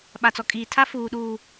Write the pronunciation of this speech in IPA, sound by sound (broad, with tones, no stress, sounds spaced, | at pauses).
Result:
ɓ a˨ t͡s ɔ˨ kʼ iː˨ tʰ a˦ f uː˨ ɗ uː˨